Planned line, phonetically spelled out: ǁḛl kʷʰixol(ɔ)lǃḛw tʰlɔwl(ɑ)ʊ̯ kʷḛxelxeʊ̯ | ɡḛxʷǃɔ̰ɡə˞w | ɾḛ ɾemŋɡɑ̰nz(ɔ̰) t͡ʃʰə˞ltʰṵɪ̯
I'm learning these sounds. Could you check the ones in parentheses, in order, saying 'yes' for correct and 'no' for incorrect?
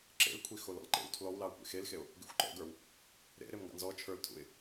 no, yes, no

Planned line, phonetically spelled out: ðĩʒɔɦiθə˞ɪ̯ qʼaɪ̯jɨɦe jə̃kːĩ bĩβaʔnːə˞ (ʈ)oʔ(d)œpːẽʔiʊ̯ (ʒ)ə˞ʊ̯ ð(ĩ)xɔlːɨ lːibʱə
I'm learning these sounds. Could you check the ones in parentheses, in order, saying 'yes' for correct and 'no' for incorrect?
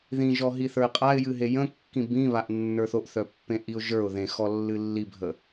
no, no, yes, no

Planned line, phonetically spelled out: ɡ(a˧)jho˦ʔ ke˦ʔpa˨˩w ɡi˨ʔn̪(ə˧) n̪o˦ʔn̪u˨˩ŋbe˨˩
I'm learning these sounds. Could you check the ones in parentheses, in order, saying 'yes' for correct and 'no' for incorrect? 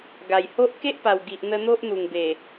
no, yes

